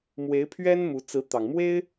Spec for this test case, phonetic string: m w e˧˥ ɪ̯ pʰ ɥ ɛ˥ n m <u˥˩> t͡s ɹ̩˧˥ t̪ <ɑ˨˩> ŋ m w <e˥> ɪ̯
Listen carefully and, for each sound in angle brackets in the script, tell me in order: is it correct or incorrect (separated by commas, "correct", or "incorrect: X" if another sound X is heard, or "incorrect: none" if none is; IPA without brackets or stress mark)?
incorrect: u˧˥, correct, correct